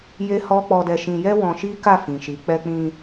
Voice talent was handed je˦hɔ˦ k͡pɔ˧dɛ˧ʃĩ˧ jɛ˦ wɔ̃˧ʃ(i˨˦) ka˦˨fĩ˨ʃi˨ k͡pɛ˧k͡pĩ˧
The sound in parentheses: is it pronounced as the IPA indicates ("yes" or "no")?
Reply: no